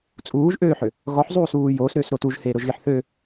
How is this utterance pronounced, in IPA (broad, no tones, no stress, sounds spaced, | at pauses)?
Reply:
t͡sʼ uː ʒ ʔ øː ħ ø | ɣ ɔ ħ zˤ uː s uː j oː s ɾ øː s ɾ o t u ʒ h eː ɾ o ʒ ɣ e ħ θ ø